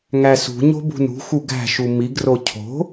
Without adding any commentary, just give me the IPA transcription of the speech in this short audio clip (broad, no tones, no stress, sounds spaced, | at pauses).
ŋ æ s ṳ ɲ o̤ b ṳ n ṳ x u ɡ æ̤ ʃ u m i ɡ r o cʰ o̤